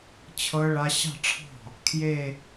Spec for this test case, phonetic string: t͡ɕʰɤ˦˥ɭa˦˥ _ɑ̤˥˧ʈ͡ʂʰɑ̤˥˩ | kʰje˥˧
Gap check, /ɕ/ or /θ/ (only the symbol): ɕ